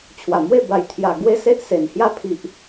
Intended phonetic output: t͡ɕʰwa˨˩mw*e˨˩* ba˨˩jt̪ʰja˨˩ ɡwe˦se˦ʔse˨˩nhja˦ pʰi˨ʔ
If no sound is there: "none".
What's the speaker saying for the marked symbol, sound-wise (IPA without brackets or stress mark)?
e˥˧